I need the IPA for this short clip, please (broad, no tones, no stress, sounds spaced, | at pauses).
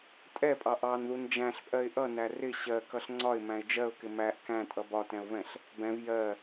tʼ ɛ pʼ ɑ ʔ ɑ n ð u n d͡ʒ æ̃ ɬ pʼ ɜ ɪ̯ ʔ ʌ n æ r ɪ ɕ ɜ k ʌ ɬ ŋ͡ǀ ɒ ɪ̯ m æ̃ ɪ̯ d͡ʒ ɜ ʊ̯ k ɪ m æ ʔ k æ̃ tʼ ʌ b ɒ t ɛ̃ ʊ̯ v ɛ̃ ɬ | b ɛ̃ v j ɜ